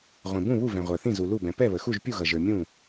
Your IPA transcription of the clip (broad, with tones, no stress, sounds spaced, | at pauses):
ʁʷ ĩ˨ b ũ˥˨ β u˥˨ v ɛ̃˨ ʁʷ ə˞˨ θ ĩ˥˨ z u˨ l u˥˨ b ɛ̃˨ p ɛ˥˨ β ə˨ x u˥˨ ʒ pʲ u˥˨ ɣ ʌ˨ ʒ ə˞˨ mʲ ũ˥˨